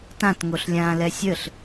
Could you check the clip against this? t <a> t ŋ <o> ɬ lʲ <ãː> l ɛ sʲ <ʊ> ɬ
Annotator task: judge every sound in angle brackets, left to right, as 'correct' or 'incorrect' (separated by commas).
incorrect, correct, correct, incorrect